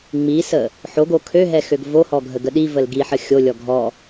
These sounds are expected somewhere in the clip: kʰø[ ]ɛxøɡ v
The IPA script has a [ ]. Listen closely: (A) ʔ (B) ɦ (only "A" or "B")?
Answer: B